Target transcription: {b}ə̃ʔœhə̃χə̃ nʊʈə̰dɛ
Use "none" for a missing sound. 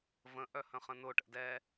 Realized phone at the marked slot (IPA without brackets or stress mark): v